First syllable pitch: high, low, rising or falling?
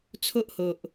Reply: high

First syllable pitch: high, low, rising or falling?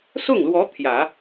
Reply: falling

